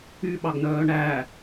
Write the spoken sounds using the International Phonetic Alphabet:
yɓɑɡnœː ɳæ

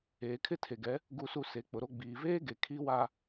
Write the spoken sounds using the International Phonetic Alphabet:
eː˨kʰɪ˦ tʰe˨ɡɛ˨˦ | ɡu˦su˦ se˨˦k͡pʊ˨ɾo˦ ɡ͡biː˨veː˦ɡe˨ kʰi˦ wa˦

